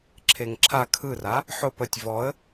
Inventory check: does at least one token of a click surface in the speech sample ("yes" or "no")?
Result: yes